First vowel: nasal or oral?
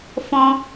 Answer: nasal